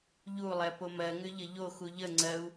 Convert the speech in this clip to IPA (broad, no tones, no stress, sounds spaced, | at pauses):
ʎ u lˠ ɛ p o m ɜ ŋ ʏ ʎ ə ʎ o x u ʎ ə ŋ͡ǀ ɜ u̯